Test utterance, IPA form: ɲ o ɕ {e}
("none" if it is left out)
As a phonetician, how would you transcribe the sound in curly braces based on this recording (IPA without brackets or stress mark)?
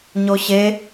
e